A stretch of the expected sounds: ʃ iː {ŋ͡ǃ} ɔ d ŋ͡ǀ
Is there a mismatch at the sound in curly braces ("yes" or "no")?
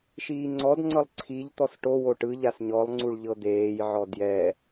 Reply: yes